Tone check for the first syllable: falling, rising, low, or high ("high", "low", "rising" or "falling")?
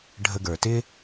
high